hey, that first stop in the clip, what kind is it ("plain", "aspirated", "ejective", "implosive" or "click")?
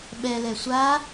implosive